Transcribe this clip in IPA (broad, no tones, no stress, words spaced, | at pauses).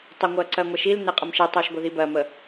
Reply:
tˤəŋʷɜǀɜ ŋʷeʃilneqʼəm ʃitˤoʃ ɡʷeðibɜmə